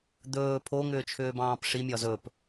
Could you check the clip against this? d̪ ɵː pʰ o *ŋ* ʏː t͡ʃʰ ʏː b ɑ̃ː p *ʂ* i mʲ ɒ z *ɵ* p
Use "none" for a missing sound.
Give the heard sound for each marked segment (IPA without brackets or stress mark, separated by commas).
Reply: ŋ, ʂ, ɵ